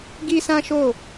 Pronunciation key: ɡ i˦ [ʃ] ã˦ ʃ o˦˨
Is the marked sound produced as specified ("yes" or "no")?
no